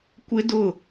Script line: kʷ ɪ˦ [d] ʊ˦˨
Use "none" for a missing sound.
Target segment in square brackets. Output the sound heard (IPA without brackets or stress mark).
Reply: d